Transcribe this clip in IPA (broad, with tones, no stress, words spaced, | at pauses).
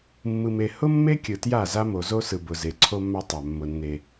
mːɯ˨me˨hʊ˦mːe˦ kʲɯ˨tja˦˨za˦ mo˨zo˦sɯ˨ bʊ˨ze˨ ǀʰo˦mːa˦tˤa˨ mːʊ˨ nːe˨